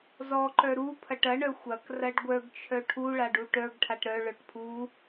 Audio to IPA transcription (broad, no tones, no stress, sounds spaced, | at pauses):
z ɔ ǃ œ ɾ u pʰ ɐ ʈ ɐ ɳ œ xʷ ɐ k r ɐ ɖ ɡʷ œ ɡ t͡ʃʰ œ ʈʰ u ɭ a ɖ u ʈ œ ɡ ʈʰ a ʈ ɾ œ ɭ œ ʈ pʰ u